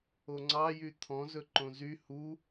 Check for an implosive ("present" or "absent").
absent